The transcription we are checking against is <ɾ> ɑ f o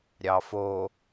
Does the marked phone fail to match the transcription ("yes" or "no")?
yes